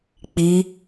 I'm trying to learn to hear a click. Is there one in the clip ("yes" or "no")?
no